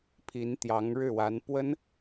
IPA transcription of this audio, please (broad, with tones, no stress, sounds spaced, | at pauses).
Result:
pʰ i˧˥ n t̪ j ɑ˧˥ ŋ ɻ ɻ̩˥˩ w a˧˥ n p w ə˥ n